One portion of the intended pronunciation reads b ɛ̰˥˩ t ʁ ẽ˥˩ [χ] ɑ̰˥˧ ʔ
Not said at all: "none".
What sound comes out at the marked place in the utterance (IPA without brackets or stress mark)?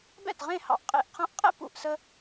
h